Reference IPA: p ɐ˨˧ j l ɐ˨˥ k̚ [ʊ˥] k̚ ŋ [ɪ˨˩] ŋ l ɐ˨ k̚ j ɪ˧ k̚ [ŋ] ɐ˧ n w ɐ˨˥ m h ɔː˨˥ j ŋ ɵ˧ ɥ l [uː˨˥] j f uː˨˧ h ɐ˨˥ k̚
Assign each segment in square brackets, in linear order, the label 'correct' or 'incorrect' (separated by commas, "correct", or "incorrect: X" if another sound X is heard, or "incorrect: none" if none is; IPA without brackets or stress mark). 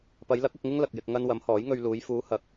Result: incorrect: ʊ˨, incorrect: ɪ˥, correct, incorrect: uː˨˧